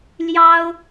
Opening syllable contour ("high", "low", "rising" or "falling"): high